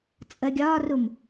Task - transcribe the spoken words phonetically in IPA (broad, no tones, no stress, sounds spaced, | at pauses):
t͡sʼ ə ɡʲ ɒː r u m